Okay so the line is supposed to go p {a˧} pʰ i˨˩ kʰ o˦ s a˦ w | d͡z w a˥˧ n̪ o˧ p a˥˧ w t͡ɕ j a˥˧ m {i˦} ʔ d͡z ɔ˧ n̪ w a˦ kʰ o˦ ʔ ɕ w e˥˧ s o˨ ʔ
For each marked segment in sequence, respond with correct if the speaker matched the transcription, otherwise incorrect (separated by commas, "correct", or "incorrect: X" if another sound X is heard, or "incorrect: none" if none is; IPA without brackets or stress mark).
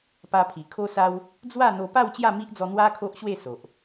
correct, correct